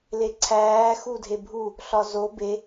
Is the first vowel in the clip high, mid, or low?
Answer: mid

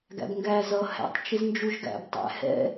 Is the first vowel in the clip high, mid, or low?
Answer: low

